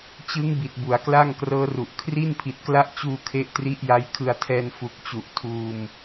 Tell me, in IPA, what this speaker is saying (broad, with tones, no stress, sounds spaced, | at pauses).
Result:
t͡ɕ ɯ˦˥ ŋ b i˨˩ t̚ b u˩˦ a̯ k l a˥˩ ŋ k r ɤː˦˥ r u˨˩ ʔ kʰ r i˥˩ n pʰ i˨˩ t̚ k l a˦˥ ʔ t͡ɕ uː˧ kʰ e˦˥ ʔ t r i˦˥ ʔ j a˦˥ j kʰ ɯ˧ a̯ tʰ ɛː˧ n f u˨˩ k̚ t͡ɕ u˨˩ ʔ tʰ uː˧ m